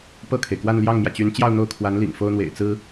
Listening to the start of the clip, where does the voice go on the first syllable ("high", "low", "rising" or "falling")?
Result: falling